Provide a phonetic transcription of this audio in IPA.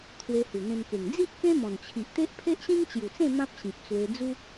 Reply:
t̪ʰ w e˧ h u˨˩ n̪ ẽ˧ m k e˨˩ ŋ d͡z i˦ ʔ k ẽ˦ m ɔ̃˨˩ n t͡ɕʰ i˨ ʔ t̪ e˦ ʔ pʰ e˦ ʔ ɕ ĩ˦ ŋ t͡ɕ j u˨˩ t͡s ẽ˥˧ m ã˦ p̚ ɕ ĩ˨ p̚ t͡s w e˧ d͡z u˦

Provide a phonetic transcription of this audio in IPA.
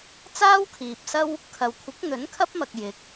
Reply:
t͡s aː˥ w kʰ iː˨ p̚ s ɐ˥ w | kʰ ɐ˨ w kʷʰ ɪ˨˥ k̚ n̪ ɵ˨˥ n kʰ ɐ˥ p̚ m ɐ˨ k̚ j ɪ˨˥ k̚

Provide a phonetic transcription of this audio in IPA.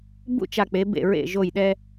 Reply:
b ṵ˥˧ t͡ʃ a˧˩ k͡p e˩˧ b ḛ˧˩ ɹ ḛ˧˩ ʒ o˧˩ j ɗ ɛ˧

